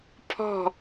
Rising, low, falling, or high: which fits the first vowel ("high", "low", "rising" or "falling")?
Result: falling